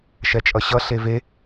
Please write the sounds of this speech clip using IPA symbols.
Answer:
ʃ ɛ t͡ʃʼ ʌ ɕ ʌ ɬ e v e

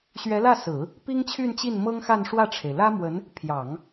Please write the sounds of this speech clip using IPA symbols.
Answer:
ɕ ɥ ɛ˧˥ l ä˥˩ s ɹ̩˨˩˦ | p i˥ ŋ t͡ɕʰ y˥˧ n t͡ɕ i˥˩ n m ɤ˥ ŋ x a˥˧ n ʂ w ä˥˩ ʈ͡ʂʰ e˩ ɪ̯ l ä˥ m w ə˧˥ n | pʰ j ɑ˨˩˦ ŋ

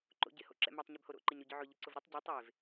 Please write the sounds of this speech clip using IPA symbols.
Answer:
ǃ o̰ ɟ ɪ h o̰ ǁ ɛ̰ m a tˤ ɲ e b h o ɾ o̰ ǃ ɪ ɲ ɾ y ɟ ʏ ʕ ʊ ʎ ɪ ǀ ʊ v ɾ ʊ tˤ ɟ y tˤ e v

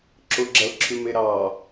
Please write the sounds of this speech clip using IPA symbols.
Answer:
ǁ ʊ ɡ͡ǁ ɐ l ǁʰ ʉ m e ɾ ɑ

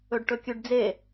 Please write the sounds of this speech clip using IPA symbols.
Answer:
ɵ ɖ ʈ ɵ kʲ ʉ ɖ d͡z e

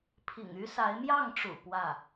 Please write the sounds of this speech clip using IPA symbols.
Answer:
pʰ ḭ˨˩ ŋ y˥ s a˧˥ ɪ̯ m j ɑ˥˩ ŋ ʈ͡ʂ ṵ˨˩ p w ä˥˩

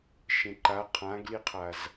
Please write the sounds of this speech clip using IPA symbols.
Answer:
ʃ ẽ ǃ a qʰ ã ɡ l i qʰ a z

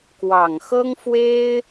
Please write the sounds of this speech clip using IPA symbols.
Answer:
k w ɑ˨˩ ŋ x ɤ˥ ŋ f w e˥ ɪ̯

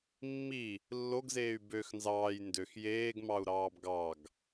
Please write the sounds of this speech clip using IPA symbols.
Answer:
mː i | lː o ɡ z eː y̯ b ø x n z ɑː j n d ø x j eː ɡ m ɑ u̯ ɾ ɑː b ɡ ɑ ɡ

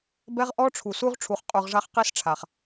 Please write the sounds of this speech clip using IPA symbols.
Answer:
b ɛ˦ ʁ ʔ ɔ˦ ʈ͡ʂʰ u˨ s u˦ ʁ ʈ͡ʂʰ u˨ χ qʼ u˨ ʁ ʐ a˦ χ q i˦ s ʈ͡ʂʰ a˨ χ

